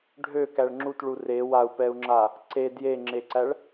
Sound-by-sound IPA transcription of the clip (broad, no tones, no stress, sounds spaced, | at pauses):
ɖʱ ø k æ ɭ ŋ͡ǁ u t ɭ u r e w a u̯ p ɛ u̯ ŋ͡ǁ a | ǀ e d j e ŋ͡ǁ e ǀ æ ɭ